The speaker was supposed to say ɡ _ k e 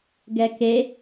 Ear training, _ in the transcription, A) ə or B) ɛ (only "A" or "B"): B